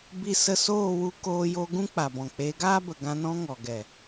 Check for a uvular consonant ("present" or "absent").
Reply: absent